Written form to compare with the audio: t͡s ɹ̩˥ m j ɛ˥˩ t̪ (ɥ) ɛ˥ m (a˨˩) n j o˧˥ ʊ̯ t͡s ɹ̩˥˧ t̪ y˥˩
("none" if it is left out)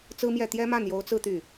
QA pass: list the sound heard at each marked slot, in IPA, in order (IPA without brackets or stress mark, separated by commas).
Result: j, a˥˩